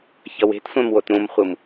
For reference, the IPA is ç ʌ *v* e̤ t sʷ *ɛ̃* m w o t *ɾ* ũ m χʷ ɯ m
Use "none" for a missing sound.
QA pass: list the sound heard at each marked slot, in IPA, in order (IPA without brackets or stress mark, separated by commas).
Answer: w, ɛ̃, ɾ